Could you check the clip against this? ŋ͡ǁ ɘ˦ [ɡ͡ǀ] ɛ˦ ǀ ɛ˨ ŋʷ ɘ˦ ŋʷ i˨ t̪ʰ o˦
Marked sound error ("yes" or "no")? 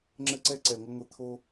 yes